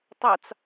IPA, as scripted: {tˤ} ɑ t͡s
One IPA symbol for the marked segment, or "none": tˤ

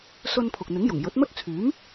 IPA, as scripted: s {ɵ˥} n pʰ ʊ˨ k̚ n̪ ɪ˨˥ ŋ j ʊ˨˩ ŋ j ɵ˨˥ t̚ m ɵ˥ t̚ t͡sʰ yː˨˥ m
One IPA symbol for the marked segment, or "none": ɵ˧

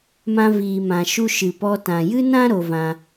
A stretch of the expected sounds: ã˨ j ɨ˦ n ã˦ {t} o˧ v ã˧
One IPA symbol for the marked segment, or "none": ɾ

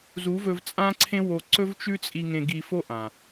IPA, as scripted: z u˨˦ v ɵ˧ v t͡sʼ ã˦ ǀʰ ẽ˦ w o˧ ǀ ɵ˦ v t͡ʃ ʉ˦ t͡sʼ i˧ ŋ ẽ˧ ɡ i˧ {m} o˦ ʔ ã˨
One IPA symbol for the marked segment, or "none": f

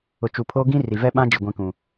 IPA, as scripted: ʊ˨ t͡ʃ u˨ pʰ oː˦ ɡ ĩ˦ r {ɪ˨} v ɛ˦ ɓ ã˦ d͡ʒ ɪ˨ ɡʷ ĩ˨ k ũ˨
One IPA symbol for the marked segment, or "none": i˨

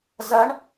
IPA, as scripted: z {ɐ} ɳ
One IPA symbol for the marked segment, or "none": ɐ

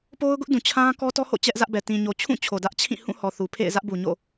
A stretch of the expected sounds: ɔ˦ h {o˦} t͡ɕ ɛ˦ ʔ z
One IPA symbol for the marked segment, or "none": o̰˦˨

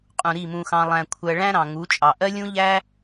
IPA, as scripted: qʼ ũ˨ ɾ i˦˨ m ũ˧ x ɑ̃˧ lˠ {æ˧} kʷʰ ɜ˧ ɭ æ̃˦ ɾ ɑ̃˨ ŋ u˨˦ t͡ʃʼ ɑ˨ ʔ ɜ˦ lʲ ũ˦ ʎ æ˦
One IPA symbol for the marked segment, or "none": æ̃˧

